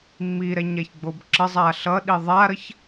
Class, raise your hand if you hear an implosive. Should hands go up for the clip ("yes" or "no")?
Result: yes